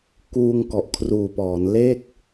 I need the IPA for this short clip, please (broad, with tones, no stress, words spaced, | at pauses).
kuː˧ŋ kɔ˨˩ʔkʰruː˨˩pɔː˩˦n le˥˩k̚